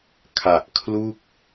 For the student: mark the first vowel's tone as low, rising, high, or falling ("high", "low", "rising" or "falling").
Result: low